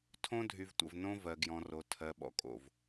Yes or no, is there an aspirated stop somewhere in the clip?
yes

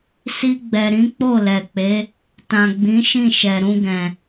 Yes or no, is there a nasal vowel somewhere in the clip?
yes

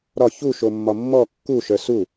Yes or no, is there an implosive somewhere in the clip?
no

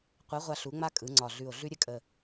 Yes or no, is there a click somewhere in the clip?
yes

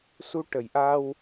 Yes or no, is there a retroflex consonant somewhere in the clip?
yes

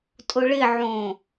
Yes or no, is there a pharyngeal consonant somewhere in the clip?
yes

